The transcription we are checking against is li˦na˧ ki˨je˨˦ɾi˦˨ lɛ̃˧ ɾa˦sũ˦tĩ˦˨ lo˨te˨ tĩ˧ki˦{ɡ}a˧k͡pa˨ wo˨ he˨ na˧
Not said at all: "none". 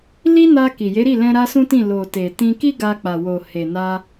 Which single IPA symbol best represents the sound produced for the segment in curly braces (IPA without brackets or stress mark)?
ɡ